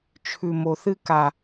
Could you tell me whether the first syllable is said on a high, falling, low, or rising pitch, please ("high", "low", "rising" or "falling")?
low